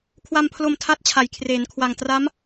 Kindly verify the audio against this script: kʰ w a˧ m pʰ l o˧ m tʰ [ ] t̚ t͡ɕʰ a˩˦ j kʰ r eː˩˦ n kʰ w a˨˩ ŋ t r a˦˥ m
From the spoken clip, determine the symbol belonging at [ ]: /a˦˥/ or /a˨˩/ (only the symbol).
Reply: a˦˥